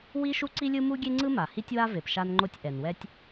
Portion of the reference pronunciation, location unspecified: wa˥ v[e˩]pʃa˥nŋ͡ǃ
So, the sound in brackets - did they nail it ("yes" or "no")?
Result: yes